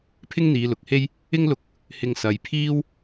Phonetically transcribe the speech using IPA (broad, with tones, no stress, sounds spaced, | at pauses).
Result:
pʰ ɪ˥ ŋ n̪ iː˨˧ l ʊ˨ k̚ h e˥ j | ɪ˥ ŋ l ʊ˧ k̚ | h ɪ˧ ŋ s ɐ˨˧ j pʰ iː˥ w